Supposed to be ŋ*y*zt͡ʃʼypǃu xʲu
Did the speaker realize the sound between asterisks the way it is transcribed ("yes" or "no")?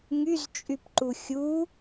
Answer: yes